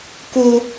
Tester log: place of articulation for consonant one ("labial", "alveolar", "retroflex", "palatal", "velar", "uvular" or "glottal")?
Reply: velar